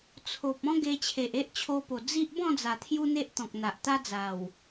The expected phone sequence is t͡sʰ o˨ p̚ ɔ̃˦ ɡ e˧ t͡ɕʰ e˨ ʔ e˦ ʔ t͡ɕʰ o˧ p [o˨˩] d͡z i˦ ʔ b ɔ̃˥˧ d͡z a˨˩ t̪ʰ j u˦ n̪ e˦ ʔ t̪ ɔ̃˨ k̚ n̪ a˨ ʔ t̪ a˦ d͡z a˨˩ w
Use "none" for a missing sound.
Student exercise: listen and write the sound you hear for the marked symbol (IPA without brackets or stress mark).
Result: o˨˩